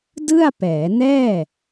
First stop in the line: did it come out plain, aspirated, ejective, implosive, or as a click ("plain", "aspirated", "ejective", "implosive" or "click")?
plain